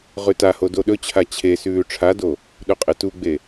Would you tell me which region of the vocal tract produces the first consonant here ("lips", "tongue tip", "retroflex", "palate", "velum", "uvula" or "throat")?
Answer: uvula